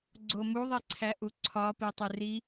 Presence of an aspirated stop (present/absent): present